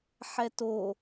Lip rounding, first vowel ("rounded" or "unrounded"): unrounded